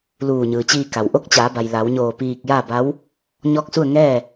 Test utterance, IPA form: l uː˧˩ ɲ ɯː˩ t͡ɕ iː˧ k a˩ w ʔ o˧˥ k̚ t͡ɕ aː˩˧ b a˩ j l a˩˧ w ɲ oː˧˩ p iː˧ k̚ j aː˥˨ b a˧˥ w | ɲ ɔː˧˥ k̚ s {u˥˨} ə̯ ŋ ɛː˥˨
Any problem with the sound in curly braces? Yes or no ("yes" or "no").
no